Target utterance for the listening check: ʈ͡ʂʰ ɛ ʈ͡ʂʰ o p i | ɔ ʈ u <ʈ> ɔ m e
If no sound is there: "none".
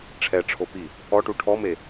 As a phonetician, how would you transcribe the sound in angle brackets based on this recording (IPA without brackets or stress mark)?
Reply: ʈʰ